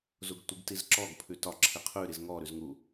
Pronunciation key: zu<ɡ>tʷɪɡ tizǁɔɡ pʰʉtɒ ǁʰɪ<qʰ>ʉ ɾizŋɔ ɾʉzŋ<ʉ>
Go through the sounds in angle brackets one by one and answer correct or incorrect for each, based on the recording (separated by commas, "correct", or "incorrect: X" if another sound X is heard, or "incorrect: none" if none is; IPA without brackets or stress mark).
correct, correct, incorrect: u